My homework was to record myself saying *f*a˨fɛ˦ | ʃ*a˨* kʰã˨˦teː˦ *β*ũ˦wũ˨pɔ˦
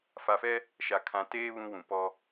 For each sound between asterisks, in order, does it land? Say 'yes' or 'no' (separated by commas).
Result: yes, yes, yes